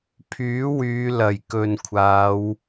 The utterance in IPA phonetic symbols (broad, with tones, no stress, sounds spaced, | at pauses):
pʰ yː˨˥ w yː˨˧ l ɐ˨˩ j k ɵ˨ n kʷʰ aː˨˧ w